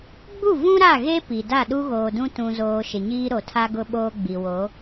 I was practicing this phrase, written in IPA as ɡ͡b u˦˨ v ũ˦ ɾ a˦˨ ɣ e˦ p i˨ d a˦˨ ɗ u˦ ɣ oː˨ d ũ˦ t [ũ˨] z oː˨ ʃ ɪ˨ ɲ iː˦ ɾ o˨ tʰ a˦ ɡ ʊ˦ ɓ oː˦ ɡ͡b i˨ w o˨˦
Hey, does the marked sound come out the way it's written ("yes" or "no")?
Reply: yes